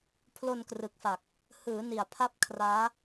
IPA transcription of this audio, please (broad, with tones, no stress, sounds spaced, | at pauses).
pʰ l o˧ n k r ɯ˨˩ k̚ f a˨˩ k̚ | h ɯː˩˦ n i˨˩ a̯ pʰ a˥˩ p̚ kʰ r aː˦˥